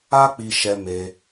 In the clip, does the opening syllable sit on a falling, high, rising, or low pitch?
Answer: high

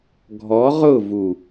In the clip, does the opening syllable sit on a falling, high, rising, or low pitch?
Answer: rising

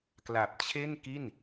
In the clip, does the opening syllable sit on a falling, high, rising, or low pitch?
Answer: low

